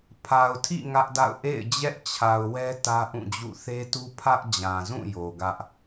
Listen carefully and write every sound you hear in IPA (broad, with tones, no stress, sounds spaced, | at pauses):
pʰ a˨ ʊ̯ tʰ ḭ˦˨ ŋ ä˦ ʔ d a̰˦˨ ʊ̯ ʔ ḛ˦˨ ɪ̯ d͡ʑ ɛ˦ ʔ t͡ɕʰ a˨ ʊ̯ w ɛ˦ t ä˦ ʔ ũ˦˨ d͡ʑ ṵ˦˨ θ e˦ t u˦ pʰ ä˦ ʔ d͡ʑ ã˨ z ũ˦˨ j o˨ ɡ ä˦ ʔ